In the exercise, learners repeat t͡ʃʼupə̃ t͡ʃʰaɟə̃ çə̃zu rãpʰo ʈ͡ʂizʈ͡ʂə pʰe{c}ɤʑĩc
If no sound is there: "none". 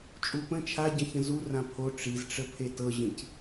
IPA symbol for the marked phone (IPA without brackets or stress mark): t